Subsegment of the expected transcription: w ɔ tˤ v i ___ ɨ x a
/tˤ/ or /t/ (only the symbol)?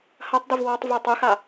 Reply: tˤ